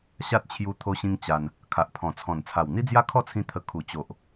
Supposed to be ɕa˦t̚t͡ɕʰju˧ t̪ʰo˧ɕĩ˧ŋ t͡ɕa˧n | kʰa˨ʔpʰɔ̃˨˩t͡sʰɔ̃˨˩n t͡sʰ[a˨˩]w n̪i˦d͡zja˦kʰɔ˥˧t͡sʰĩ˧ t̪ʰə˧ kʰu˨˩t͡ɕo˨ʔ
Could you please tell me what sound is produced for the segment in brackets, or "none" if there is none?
a˨˩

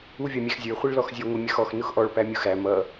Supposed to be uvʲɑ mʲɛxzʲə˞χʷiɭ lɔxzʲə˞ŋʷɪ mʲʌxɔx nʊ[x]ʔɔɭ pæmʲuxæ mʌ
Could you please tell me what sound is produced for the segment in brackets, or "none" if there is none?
x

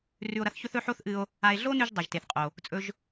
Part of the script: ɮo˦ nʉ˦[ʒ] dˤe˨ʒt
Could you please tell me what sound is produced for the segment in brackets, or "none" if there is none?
ʒ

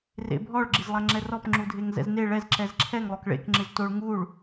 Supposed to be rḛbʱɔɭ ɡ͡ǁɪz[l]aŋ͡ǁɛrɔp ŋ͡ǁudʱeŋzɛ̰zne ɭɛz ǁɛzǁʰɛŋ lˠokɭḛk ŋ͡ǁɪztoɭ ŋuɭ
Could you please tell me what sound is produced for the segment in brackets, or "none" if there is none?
lˠ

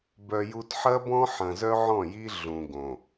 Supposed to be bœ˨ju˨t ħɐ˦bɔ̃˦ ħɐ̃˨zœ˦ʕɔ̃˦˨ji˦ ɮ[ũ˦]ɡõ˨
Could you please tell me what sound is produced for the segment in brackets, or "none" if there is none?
ũ˨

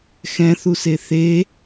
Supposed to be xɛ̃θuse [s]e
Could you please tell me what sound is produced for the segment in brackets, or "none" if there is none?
θ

